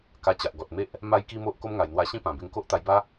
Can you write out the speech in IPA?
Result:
ka˧ t͡ɕa˨ʔɡɔ˨t̚me˦ʔ | ma˦jki˦mo˦ʔ ko˦mŋa˨˩jn̪wa˧ ɕĩ˦pã˨˩be˧ŋko˦ʔ t̪a˧jba˦

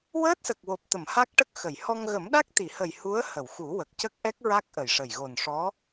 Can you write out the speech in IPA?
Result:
wəː˦˥t̚sə˨˩k̚wo˨˩p̚t̪ə˨˩˨m ha˦˥k̚ʈə˦˥k̚ xə˨˩˨j hɔ˧ŋ ɣə˨˩˦mɗa˦˥k̚t̪i˨˩˨hə˨˩j hu˧˥ə̯ hə˨˩˨wxu˨˩˦ wə˨˩k̚cə˦˥k̚ʔɛ˦˥k̚ ɹa˦˥k̚ʔə˨˩jʂə˨˩j ɣo˨˩nʂɔ˧˥

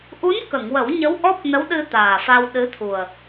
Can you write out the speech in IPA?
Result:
ʔu˧˥nkə˨˩˨ŋwə˨˩˦w ɲə˧˥wʔɔ˦˥p̚nə˧˥wɗɨ˧ t̪aː˨˩fa˧w ɗɨ˧˥t̪ʰu˨˩ə̯

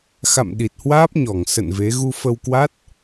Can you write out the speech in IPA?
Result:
xa̰˧˨m ɗi˨˩t̚hwaː˦˥p̚ ɲɔ˧˩ŋsə̰˧˨n ve˨˦ ɣu˧fə˧wkwa˦˥t̚

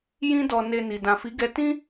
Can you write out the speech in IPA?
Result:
jĩ˦dɔ˧ ne˧ni˨ dã˨fi˨˦ɡɛ˧ tĩ˦

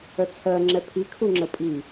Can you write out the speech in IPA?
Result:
œt͡sʰɜ ŋ͡ǁɛpʰi kʰuŋ͡ǁəpʼi

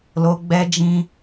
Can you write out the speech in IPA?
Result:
lo˧ ɡ͡bɛ˧d͡ʒĩ˧

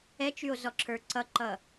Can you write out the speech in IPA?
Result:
ɛt͡ʃyo̯ zɔǁʰə˞ǀʌǃʌ

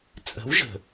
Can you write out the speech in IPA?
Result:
t͡sʼə̤˨˦wʒə̤˨

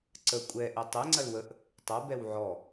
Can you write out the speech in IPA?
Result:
ǀə kʷʼɛ ʔetˤe ŋ͡ǀɐlwəʔ | tˤɐ bɛwʕɔ

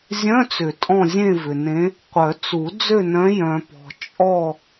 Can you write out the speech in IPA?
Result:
zʲœ̃˧˥˧t͡sʏ˨˩˦ tʼɔ̃˥˧ zʲẽ˥˧vʏ˨nẽ˧˥ | qʷœ˨˩˦ t͡su˨˩˦ d͡zø˥˧nœ̃˧˥ jœ̃˨pɔ̤˨ t͡ʃʼɔ˥˧

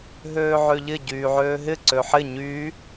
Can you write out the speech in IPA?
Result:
ɦøːʕøʎɪ ɟyːʕøːɦɪ ǀøħɪ ɲyː

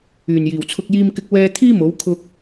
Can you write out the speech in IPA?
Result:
yː˨˩njiː˨˩wt͡sʰʊ˧k̚ jiː˥mkɪ˥k̚ wɛː˧t̪ʰiː˥ mo˨˥w kʰʊ˧k̚

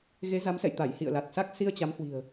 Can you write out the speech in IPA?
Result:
ɣe˨˦za˨˦msɛ̰˧˨j t̪a˧˩jhḭ˧˨ə̯ la˨˩t̚sa˦˥k̚ si˧ə̯t͡ɕa˨˦mhwi̤˨˩ə̯

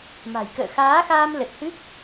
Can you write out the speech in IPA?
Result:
ma̤˨˩jkə̰ː˧˨xaː˨˦xaː˧m lə˨˩t̚hɨ˦˥k̚

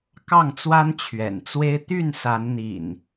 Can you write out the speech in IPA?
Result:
kɑ˥˨ŋt͡swa˦n t͡ɕʰɥɛ̰˨˩nt͡swe˦ɪ̯ t̪y˥˨nsa˨˦nn̪ḭ˨˩n

